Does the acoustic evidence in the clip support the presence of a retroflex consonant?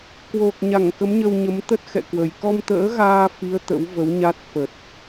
no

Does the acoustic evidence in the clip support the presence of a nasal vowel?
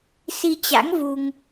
no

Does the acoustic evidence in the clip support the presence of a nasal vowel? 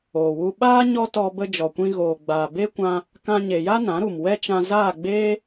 yes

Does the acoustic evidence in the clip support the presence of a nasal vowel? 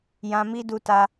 yes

